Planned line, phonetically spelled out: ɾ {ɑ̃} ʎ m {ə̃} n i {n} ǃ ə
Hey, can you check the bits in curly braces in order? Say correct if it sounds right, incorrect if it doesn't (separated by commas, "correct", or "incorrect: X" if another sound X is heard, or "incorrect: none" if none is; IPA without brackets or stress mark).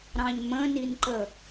correct, correct, correct